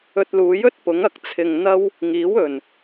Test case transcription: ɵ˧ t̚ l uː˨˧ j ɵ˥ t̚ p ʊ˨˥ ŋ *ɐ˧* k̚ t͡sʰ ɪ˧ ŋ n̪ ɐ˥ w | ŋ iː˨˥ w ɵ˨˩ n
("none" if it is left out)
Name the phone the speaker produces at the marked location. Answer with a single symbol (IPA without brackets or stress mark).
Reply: ɐ˧